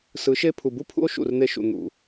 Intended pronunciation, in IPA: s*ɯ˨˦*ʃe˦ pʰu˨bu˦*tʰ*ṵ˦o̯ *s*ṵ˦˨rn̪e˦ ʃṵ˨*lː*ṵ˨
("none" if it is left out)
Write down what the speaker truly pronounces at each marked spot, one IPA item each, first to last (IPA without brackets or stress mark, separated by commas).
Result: ɯ˨˦, pʰ, ʃ, n̪